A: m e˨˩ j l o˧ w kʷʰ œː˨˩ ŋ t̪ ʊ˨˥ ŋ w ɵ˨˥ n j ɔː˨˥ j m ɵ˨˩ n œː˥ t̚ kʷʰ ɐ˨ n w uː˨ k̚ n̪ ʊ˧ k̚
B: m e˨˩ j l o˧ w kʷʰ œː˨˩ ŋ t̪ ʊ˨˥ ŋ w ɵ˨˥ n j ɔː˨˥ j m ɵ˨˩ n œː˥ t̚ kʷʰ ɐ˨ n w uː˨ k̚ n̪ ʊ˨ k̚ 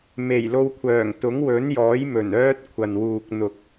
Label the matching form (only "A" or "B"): B